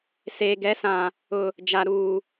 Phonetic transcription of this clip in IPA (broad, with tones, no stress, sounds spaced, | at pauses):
s eː˨ ɡ ɛ˨˦ s ã˨ | ʊ˨ | d͡ʒ a˨ ɾ uː˨